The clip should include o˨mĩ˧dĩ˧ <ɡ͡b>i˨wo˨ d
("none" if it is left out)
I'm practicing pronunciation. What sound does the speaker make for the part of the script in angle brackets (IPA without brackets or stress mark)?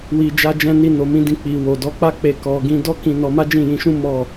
k͡p